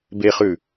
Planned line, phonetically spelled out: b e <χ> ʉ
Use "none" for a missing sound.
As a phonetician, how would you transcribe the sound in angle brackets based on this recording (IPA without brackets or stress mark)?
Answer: χ